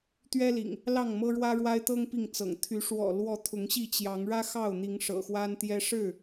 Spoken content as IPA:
t̪ ɥ ɛ˦ l ḭ˨˩ ŋ | l ɑ˥˨ ŋ m ɤ˦ ɻ w ä˦ ɻ w a˦ ɪ̯ t̪ ɤ˦ ŋ p i˥˨ ŋ t͡s ɤ̰˨˩ ŋ t̪ʰ y˨˦ ʂ w ɔ̰˨˩ l w ɔ˨˦ t̪ʰ ʊ˨˦ ŋ ɕ i˥˨ t͡ɕ j ɑ˨˦ ŋ ɻ ä˦ x ɑ˥˨ ʊ̯ n̪ i˨˦ ŋ ʂ ɤ̰˨˩ x w a˦ n t̪ j ɛ˦ ʂ ɻ̩˥˨

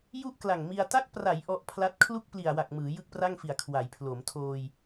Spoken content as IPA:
j u˥˩ ʔ k l a˨˩ ŋ m i˧ a̯ t a˦˥ k̚ p r a˩˦ j ʔ ɔ˦˥ ʔ pʰ l a˦˥ t̚ kʰ l u˥˩ k̚ p l i˨˩ a̯ w a˨˩ k̚ m ɯː˩˦ j ɯ˥˩ k̚ p r a˥˩ ŋ f i˨˩ a̯ kʰ w a˩˦ j pʰ l o˩˦ m tʰ oː˧ j

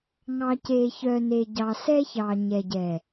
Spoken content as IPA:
ŋ ɑ˨ c eː˨ ç œ˨ n e˨ ɟ ɑ˨ s ɛ˦ ç ɑ˨ ɲ ɛ˨ ɟ ɛː˨

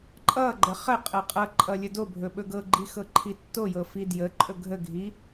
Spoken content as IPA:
ǃʼ ʌ ɡ͡ǃ ə χ ə qʼ ɤ qʼ ʌ ǃʼ ʌ lʲ ɵ d o bʱ ɵ ɓ ɵ ɡ ɤ ɡ͡ǃ i x ɤ ǃʰ i tː o j ɤ f i d j ə ǃʼ ɵ ɡʱ ə ɡʱ i

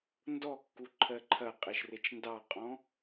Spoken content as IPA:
n d ɔ kː u ǃʰ ɜ ǃʰ ɐ qʼ e ʃ r e t͡ʃ n d ɑ qʼ ɔ̃

